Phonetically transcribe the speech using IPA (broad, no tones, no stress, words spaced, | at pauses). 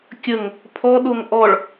kʲəŋ | pʰɔɗoŋ ʔɔɭ